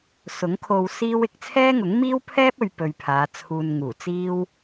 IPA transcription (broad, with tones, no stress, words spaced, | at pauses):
sʊ˨˥ŋ kʰo˧wsiː˥w ɪ˧k̚t͡sʰɛː˥ŋʊ˨˥ŋ miː˥wpʰɛː˥p̚ɵ˨ɥ pɵ˧ɥpʰaː˨˧t͡sʰuː˧n ŋuː˨˩t͡siː˥w